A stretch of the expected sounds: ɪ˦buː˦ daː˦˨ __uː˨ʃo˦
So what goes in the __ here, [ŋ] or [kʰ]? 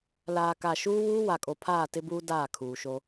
kʰ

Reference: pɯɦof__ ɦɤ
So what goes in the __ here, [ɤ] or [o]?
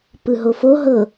o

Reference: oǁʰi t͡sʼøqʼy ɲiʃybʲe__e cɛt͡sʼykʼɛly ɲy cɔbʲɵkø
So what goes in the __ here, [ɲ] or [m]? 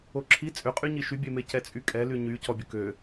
m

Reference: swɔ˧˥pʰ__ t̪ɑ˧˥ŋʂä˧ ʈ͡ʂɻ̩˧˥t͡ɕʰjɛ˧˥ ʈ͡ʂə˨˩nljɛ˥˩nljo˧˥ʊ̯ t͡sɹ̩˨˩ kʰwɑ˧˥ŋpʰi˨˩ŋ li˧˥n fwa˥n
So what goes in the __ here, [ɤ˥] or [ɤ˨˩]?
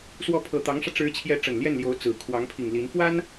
ɤ˨˩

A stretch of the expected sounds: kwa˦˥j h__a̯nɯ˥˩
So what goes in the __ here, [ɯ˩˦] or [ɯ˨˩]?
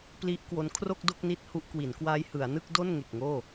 ɯ˩˦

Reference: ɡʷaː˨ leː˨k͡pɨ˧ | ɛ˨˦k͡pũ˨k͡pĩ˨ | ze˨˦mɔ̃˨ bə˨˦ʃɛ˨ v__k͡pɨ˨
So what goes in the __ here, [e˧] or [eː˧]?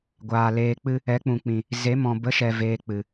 eː˧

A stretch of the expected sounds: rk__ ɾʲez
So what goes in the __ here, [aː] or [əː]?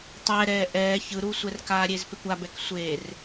aː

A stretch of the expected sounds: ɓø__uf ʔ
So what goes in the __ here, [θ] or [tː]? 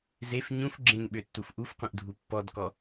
tː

